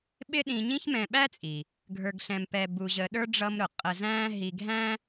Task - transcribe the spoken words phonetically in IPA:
ɓ ɪ˥ ɗ ĩ˧ ɲ ĩ˥ ç m ɛ̃˧ ɓ æ˥ t͡sʼ i˩ | ɡʱ ə˞˧ ɡ ɬ ɛ̃˧ m p ɛ˧ b u˧ ʑ ə˧ ɗ ə˞˥ ɖ͡ʐ ʌ˧ m ɾ ʊ˩ qʼ ə˧ z æ̃ː˥ ɦ i˧ ɡʱ æ̃˥

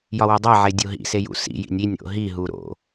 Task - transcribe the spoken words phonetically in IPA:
j ɒ w e dˤ æ ʕ e dʲ o ɦ ḭ s e j ṵ s ḭ j ḭ nʲ i nʲ ɾ o̰ ɦ i ɦ u ɾ o̰

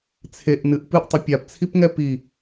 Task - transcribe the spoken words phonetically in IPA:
t͡sʰ e ʔ n ɨ ʔ p ɨ ʔ tˤ ə pʲ a p t͡sʰ i p ŋ ɛ p i

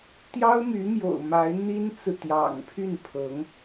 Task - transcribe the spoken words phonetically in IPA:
t̪ j ɑ˥ ʊ̯ m y˧˥ m j o̰˨˩ ʊ̯ m a˧˥ ɪ̯ n̪ i˥ n t͡s ɹ̩˨ t̪ j ɑ̰˨˩ ŋ pʰ y˥˩ n pʰ ɤ˧˥ ŋ

